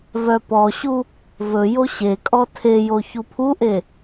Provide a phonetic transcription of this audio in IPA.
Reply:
v œ p ɔ ɕ u | v ɵ j o ɕ e kʼ ɔ tʰ e j o ç u pʰ u ʔ e

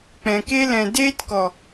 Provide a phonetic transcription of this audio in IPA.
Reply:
k͡p ɛ̃˨ k e˧ l ɛ̃˨ d eː˧ t k ɔ˨

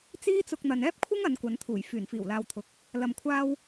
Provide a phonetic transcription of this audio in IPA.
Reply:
t͡s iː˥ t͡s ʊ˧ k̚ n̪ ɐ˨ n ɛː˥ p̚ kʷʰ ɪ˥ ŋ ɐ˨˧ n kʷ ɐ˨˧ n t̪ʰ uː˨˩ j f yː˨˩ n f iː˨˩ w l aː˨ w t̪ʰ ʊ˨˥ k̚ | l ɐ˨ m kʷʰ aː˧ w

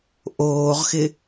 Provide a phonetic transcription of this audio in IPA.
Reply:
ʔ oː ʁ x ɪ

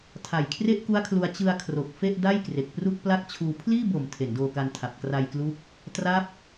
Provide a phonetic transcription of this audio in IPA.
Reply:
tʰ a˨˩ j kʰ r e˥˩ ʔ k u˦˥ a̯ kʰ l u˧ a̯ t͡ɕ ɯ˧ a̯ kʰ r o˨˩ k̚ f e˥˩ ʔ d a˥˩ j k r e˨˩ k̚ p r u˥˩ k̚ p l a˥˩ k̚ t͡ɕʰ uː˧ pʰ l iː˥˩ b o˨˩ m tʰ e˩˦ n d oː˧ k a˧ n tʰ a˨˩ p̚ k r a˧ j k l u˦˥ k̚ | t r a˦˥ p̚

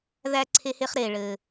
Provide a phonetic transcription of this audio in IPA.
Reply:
ð æ˦ ǀʰ e˦ h e˦ χ ɾ eː˨ ɭ ɘː˨

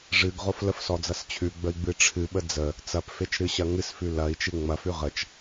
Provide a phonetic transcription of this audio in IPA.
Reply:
ʐ ɨ ɡ ʁ o f l ə f s ɔ d͡z ɐ s t͡ɕʰ ʉ ɡ͡b ə i̯ ɡ͡b ɨ ʈ͡ʂʰ ɨ ɓ ə d͡z ə | t͡s ɐ p f e t͡ʃ ɾ ɨ ɕ ɐ ŋ ɨ s f ʉ l ɐ i̯ t͡ʃ ɨ ŋ͡m ɐ f ʉ ʁ ə t͡ʃ

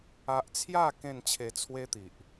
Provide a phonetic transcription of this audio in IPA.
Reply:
a˦ ʔ t͡sʰ j a˥˧ k ẽ˥˧ n t͡ɕʰ e˧ t͡sʰ w e˦ t̪ i˨ ʔ

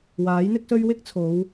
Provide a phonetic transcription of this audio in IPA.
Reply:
w aː˨˥ j n̪ ɪ˥ k̚ s ɵ˥ ɥ w ɪ˥ k̚ t͡sʰ o˨˧ w

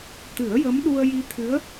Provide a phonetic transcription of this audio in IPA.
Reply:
t̪ ɨ˨˩˦ ə̯ j ə˧˥ m ɗ u˧ ə̯ j i˧ t̪ʰ ɨ˧˥ ə̯

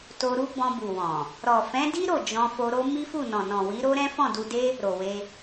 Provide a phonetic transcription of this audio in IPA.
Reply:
t o˧ ɾ u˦ b ɔ̃˧ b u˨ w ɔ̃˨ | ɾ ɔ˨ f ɛ̃˨˦ d i˦ ɾ o˦˨ d͡ʒ ɔ̃˧ f o˧ ɾ o˦ m i˦ f u˦˨ n ɔ̃˨ n ɔ̃˨ w i˨˦ ɾ o˦ ɾ ɛ̃˦ f ɔ̃˦˨ d u˧ d e˦ | ɾ o˨ w e˧

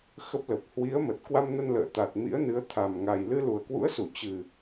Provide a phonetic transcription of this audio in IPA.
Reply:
x ə˦˥ p̚ l ə˨˩ p̚ h w i˨˦ ə̯ m ə˨˩ t̚ k w a˧ m n ə˧ n l ə̰ː˧˨ t̪ a˨˩ t̚ m ḭ˧˥ ə̯ n ɨ˨˦ ə̯ t̪ʰ a˨˩ m ŋ a˨˩ j l ɨ˧ l u˨˩ ə̯ k w ṵ˧˥ ə̯ s u˧˩ t͡ɕ ɨ˨˩

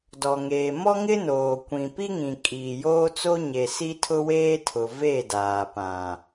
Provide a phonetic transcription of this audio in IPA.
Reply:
d ɔ˨ ŋ eː˨ m ɔ˦ ŋ ɪ˦ n oː˨ kʷ ĩ˨ p i˦ ŋ ĩ˨ kʼ iː˨ j oː˦ t͡s o˦ ɲ e˨ s i˦ tʰ ʊ˦ w eː˦ tʰ ʊ˨ v e˦˨ d aː˨ p ã˨

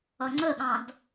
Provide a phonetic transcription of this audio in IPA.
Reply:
ʌ ŋ͡ǀ ə ɠ ɑ̃ d

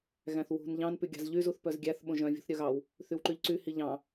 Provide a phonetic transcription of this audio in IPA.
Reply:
ɣ æ̃ θ w ṳ n ʎ ɑ̃ n p y ɡʲ ɑ̤ z ʎ y z u θ p œ z ɡʲ æ θ ɓ õ ʒ œ̃ vʲ ṳ θ ɾʲ œ ɣ ɑ w | θ y w ǃ y ʎ ǀ y h i ʎ ɑ̃

